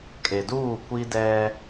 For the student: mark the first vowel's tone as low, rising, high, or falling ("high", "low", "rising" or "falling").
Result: low